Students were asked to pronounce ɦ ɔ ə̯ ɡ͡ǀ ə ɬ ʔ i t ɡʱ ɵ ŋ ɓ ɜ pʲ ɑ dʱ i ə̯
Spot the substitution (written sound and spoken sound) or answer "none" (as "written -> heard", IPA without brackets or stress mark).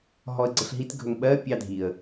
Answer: ʔ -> ɦ